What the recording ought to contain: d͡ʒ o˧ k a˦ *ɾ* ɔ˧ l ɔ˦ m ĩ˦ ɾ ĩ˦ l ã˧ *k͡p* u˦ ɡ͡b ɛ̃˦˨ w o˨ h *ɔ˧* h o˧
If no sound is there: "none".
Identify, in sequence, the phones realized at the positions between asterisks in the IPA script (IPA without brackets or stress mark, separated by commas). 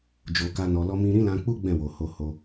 n, k͡p, o˧